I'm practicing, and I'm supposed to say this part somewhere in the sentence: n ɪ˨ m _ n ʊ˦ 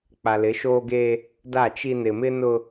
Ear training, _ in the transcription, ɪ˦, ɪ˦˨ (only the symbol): ɪ˦